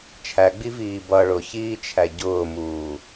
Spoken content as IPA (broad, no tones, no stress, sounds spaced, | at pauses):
t͡ʃʰ æ ɡ͡b i v iː b ʌ ɭ ʊ ç iː t͡ʃʰ æ ɟ ʊː m uː